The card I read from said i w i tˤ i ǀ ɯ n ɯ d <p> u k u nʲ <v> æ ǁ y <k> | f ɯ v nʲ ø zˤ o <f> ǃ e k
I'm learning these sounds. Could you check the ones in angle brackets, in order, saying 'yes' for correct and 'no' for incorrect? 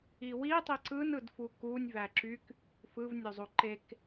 no, yes, yes, no

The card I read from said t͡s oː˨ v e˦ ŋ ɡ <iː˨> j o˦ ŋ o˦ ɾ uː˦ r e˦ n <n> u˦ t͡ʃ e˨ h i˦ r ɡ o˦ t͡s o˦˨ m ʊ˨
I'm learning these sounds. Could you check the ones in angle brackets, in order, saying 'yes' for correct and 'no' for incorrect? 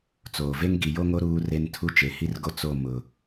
no, no

